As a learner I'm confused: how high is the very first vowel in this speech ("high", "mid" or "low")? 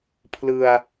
high